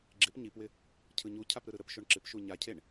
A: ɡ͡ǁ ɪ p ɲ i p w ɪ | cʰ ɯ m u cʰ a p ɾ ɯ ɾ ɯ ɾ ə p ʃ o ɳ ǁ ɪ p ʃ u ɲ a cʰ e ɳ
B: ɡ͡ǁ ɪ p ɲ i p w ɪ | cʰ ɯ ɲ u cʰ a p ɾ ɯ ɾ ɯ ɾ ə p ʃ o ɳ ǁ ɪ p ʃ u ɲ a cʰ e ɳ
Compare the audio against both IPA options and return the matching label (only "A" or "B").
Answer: B